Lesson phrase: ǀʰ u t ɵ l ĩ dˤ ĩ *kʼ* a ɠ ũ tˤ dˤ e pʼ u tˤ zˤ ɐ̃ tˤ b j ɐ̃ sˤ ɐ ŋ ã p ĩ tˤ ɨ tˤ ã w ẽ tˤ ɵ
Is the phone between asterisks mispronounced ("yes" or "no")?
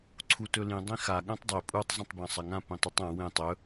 yes